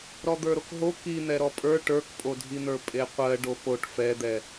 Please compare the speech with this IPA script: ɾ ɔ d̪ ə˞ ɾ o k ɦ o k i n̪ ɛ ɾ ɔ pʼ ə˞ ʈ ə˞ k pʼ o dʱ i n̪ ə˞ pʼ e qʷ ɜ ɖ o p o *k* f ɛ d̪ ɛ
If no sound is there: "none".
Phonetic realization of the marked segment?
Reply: ʈ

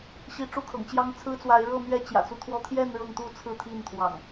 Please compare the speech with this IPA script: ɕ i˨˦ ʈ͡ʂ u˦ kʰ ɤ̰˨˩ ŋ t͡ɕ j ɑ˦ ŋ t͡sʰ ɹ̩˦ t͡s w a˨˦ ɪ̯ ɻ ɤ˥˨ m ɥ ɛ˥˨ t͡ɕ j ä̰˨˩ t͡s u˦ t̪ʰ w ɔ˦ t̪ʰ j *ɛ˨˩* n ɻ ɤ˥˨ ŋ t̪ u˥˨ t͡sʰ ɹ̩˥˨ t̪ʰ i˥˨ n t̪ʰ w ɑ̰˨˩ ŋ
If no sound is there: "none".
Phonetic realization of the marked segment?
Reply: ɛ˥˨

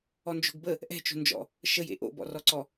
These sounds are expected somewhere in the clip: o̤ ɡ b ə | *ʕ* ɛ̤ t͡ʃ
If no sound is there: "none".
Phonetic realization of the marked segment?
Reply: ʔ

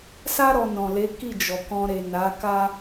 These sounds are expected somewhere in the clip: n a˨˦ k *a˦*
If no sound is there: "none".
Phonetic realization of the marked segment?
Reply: a˦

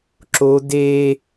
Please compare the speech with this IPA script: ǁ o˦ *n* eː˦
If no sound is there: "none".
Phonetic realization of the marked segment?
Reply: d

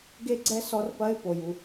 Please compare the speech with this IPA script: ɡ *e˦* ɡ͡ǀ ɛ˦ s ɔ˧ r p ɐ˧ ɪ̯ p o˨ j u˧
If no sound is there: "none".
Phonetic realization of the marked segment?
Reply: e˦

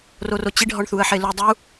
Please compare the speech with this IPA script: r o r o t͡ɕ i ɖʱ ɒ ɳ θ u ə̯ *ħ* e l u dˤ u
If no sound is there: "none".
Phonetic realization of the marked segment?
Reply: ħ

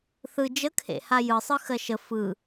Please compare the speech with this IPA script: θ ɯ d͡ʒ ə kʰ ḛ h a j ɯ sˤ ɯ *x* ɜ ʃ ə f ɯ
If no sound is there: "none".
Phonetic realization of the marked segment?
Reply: x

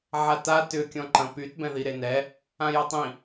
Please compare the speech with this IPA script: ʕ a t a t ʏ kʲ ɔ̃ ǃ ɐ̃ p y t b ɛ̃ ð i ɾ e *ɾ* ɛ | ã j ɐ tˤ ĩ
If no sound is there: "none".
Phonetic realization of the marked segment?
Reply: n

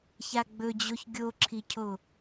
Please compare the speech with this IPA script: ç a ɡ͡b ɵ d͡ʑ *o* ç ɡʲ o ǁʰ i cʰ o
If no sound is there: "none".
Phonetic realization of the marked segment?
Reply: o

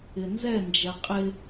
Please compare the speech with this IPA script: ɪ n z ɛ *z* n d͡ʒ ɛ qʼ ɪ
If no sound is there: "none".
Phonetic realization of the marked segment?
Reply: none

